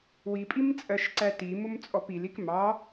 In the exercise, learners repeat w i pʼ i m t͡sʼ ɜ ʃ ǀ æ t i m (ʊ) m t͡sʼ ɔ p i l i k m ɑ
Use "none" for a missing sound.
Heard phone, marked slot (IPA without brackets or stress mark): ʊ